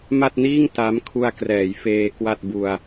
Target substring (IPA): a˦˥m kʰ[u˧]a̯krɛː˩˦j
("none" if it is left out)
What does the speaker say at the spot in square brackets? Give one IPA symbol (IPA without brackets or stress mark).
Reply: u˧